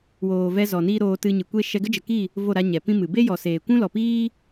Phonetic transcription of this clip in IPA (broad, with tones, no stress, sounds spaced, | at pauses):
w oː˨ v ɛ˧ z ɔ˨ n iː˦ ɾ oː˧ t ɨ˧ ɲ ɨ˨ kʷ e˦ ʃ ɛ˧ ɡ ə˦ d͡ʒ ə˨ k i˦˨ | v o˦˨ ɾ a˧ ɲ ɛ˨ p ĩ˦ m ɨ˨ b e˦ j ɔ˨ s eː˨ kʷ ũ˦ l ɔ˨ p iː˦